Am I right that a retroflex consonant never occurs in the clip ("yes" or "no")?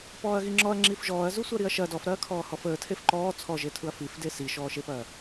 yes